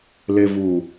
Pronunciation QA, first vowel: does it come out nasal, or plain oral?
oral